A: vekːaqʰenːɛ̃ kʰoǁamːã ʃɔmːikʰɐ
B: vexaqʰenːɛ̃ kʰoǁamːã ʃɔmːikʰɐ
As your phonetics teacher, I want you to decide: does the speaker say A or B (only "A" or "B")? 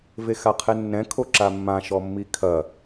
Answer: B